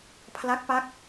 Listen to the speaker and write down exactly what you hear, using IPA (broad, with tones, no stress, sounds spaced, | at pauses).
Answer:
pʰ l a˦˥ k̚ p a˦˥ k̚